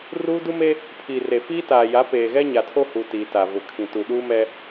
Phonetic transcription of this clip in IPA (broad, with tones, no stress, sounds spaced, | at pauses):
r uː˦ d u˦ m e˦ | pʰ iː˨ r e˨ f iː˦ t aː˨ j a˨˦ p eː˨ ɣ ɛ˦ ɲ a˨ tʰ o˦ h u˨ t iː˨ t a˨ v ʊ˨ kʰ ĩ˨ t u˨ ɗ uː˦ m ɛ˦